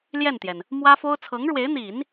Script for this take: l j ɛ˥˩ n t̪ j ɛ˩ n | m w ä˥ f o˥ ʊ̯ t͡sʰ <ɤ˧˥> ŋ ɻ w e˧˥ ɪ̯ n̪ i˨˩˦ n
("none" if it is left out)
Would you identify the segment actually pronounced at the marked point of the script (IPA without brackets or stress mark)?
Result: ɤ˧˥